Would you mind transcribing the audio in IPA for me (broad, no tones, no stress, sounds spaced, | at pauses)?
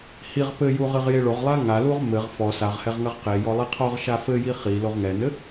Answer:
h i ʁ p ɘ j u ʁ ɨ ʁ j e ɭ o ʁ lˠ a ŋ a l u ʁ m ɘ ʁ f ɔ s a ʁ h ɛ ʁ ŋ ɐ ʁ q e j ɔ lˠ i qʰ ɔ ʁ ʃ a f ɘ j i χ i l o ʁ ŋ ɛ n ɘ